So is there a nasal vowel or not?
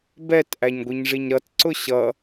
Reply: no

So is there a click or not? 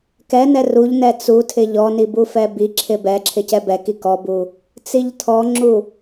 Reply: yes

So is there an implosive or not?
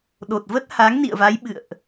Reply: yes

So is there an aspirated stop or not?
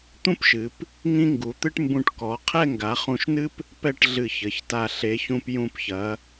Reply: yes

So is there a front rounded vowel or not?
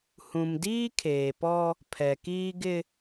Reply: no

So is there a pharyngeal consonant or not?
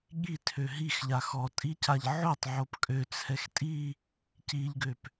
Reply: yes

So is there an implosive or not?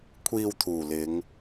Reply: no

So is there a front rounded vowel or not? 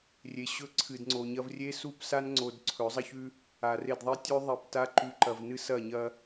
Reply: no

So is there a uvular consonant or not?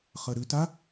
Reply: yes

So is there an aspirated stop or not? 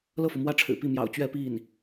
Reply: yes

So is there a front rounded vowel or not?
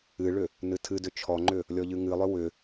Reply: yes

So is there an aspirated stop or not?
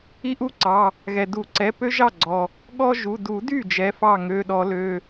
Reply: no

